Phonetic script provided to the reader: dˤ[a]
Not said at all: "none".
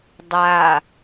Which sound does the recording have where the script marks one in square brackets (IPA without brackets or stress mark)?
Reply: a